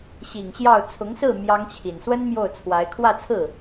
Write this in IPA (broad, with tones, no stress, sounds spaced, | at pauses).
ɕ i˨˩ ŋ ɕ j ɑ˥˩ ʊ̯ t͡sʰ ʊ˧˥ ŋ s ɹ̩˥˩ m j ɑ˥ ŋ t͡ɕʰ i˨˩ n s w ə˥ n m j o˥˩ ʊ̯ t͡sʰ w a˧˥ ɪ̯ kʰ w ä˥˧ t͡sʰ ɹ̩˥˩